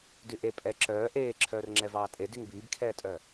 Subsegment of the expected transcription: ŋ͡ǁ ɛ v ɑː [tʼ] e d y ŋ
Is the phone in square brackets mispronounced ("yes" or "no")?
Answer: no